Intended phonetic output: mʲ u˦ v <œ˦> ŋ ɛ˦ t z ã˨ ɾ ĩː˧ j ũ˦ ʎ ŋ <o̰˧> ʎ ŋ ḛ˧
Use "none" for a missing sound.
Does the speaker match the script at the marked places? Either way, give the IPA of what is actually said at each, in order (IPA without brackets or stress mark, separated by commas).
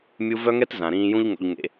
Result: œ˦, o̰˧